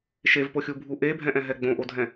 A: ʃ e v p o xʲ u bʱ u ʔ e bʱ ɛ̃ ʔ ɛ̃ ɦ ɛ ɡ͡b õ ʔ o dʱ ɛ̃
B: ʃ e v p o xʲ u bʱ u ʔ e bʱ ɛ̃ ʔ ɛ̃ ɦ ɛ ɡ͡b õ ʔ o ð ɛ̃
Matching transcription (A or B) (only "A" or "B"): A